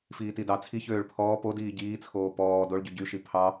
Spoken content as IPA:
f iː t i d ɑ t͡sʰ i ç øː ɭ pʰ ɔː p o d iː ɟ iː t͡sʰ oː p ɔː d o ɭ ɟ y ɟ y ʃ i pʰ ɑ

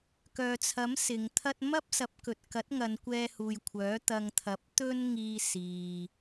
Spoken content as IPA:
k œː˨ t͡sʰ ɐ˨˥ m s ɪ˨˧ ŋ t̪ʰ ɐ˥ t̚ m ɐ˥ p̚ s ɐ˨˥ p̚ k ɵ˨ t̚ k ɐ˨˥ t̚ ŋ ɐ˨˧ n kʷ ɛː˧ h uː˨ j kʷʰ œː˨˥ t̪ ɐ˧ ŋ t̪ʰ ɐ˨˥ p̚ t̪ ɵ˥ n ŋ iː˧ s iː˨

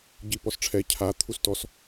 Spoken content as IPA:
ɟ i p ɔ s ʈ͡ʂʰ ɛ cʰ a t̪ʰ u s t ɔ s

